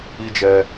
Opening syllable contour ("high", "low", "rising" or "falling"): high